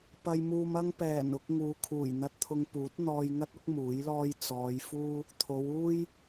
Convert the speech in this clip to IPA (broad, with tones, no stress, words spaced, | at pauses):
pɐ˧jmuː˧mɐ˥ŋ pɛː˨˩nʊ˧k̚ ŋuː˨˧ kʰuː˨˩jn̪ɐ˧t̚t̪ʰʊ˧ŋpuː˨˥t̚ n̪ɔː˧jŋɐ˥t̚ʊ˥k̚ muː˨˥jlɔː˥j t͡sɔː˨˧j fuː˥ | t̪ʰo˨˧w uː˥j